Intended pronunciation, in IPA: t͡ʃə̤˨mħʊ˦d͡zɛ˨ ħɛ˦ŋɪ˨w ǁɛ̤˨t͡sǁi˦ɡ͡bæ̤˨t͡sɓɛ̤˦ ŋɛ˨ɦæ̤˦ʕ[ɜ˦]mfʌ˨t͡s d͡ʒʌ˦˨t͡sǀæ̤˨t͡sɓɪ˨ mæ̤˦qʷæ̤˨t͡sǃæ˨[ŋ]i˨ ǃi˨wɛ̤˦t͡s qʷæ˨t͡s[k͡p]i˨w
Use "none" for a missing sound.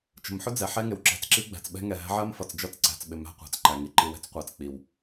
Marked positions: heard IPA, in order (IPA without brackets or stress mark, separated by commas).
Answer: ɜ˦, ŋ, k͡p